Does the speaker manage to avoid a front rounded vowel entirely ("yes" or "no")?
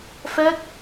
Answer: yes